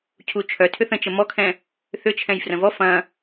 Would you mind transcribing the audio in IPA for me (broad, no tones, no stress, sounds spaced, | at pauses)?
cʰ u t͡ʃʰ œ tʰ ʏ θ ə̃ t͡ʃ ə m ɔ kʰ ɛ̃ | θ ʏ t͡ʃʰ ɛ̃ j f r ə̃ v ɔ f ɐ̃